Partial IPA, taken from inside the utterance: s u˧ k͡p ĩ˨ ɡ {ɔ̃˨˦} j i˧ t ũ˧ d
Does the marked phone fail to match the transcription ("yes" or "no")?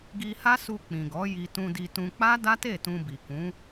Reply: yes